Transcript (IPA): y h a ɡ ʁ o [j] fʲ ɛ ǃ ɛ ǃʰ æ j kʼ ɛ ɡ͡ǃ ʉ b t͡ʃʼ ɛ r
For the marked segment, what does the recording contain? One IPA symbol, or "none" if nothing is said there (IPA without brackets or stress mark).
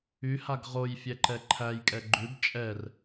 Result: j